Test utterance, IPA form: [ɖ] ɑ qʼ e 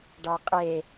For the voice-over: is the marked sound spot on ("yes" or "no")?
yes